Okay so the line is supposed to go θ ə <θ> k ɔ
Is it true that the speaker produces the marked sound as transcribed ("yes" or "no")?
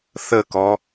no